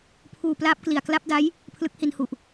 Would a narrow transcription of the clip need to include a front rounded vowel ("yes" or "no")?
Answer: no